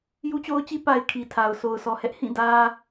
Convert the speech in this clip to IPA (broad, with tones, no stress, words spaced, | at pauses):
ju˦t͡ɕo˦ʊ̯t͡ɕi˦ pa˨ɪ̯ kʰi˨ tʰa˨ʊ̯so˨ʊ̯sʰɔ˨ hɛ˦ʔhĩ˦˨ dä˨